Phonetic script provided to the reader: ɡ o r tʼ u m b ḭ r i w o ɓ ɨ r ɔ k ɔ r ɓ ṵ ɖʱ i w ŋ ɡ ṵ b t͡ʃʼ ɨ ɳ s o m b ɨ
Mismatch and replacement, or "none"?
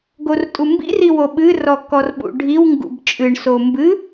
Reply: none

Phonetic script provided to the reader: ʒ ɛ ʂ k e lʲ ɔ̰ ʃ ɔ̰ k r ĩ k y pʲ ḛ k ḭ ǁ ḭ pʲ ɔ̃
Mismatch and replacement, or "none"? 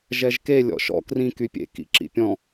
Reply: ʂ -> ʒ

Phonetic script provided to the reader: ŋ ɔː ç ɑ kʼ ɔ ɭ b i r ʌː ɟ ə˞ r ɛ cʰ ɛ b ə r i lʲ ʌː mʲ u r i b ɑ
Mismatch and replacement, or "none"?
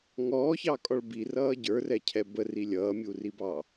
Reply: none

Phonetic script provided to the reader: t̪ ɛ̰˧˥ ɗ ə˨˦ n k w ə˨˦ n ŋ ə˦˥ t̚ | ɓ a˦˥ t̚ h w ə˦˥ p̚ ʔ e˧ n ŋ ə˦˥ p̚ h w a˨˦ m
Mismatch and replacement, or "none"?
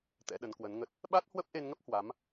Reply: none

